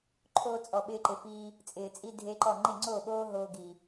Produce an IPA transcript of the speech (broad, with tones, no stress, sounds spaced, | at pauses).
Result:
ǃʰ oː˧ t͡sʼ ɔ˨ ɓ ɪː˧ ǃ ɪ˨ f iː˧ | t͡sʼ ɪː˨ t͡sʼ i˦ dʱ e˦ ǃ ɔ˦˨ ŋ͡ǃ ɪ˦˨ ŋ͡ǀ oː˦˨ ɓ oː˦ ɦ oː˧ ɡ i˨